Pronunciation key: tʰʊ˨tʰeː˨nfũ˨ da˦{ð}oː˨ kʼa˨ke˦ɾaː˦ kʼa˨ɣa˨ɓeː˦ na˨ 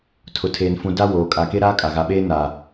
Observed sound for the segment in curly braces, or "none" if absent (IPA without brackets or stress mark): w